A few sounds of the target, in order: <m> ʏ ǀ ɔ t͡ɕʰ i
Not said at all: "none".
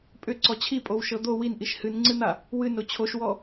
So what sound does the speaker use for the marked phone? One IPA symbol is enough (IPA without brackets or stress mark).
pʼ